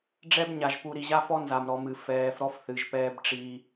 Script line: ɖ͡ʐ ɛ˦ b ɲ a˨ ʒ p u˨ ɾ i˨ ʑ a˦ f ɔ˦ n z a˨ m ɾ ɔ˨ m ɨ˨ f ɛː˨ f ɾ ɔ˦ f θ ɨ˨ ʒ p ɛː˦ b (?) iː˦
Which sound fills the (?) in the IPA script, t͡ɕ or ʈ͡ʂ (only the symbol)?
ʈ͡ʂ